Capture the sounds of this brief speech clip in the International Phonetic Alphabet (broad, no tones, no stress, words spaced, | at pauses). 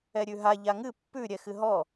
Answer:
ɛɾʲʉɦa ʎaŋɨ pːʉ ɾʲɛxɨɦɔ